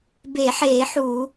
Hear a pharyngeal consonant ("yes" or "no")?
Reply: yes